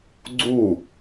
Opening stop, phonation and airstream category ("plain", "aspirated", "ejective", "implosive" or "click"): click